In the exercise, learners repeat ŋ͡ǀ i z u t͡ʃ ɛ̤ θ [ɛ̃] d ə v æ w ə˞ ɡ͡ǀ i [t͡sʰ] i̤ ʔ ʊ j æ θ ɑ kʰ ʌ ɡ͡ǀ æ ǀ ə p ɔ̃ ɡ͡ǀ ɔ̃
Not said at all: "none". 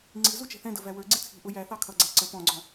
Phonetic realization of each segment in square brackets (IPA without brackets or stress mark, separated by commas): ɛ̃, t͡sʰ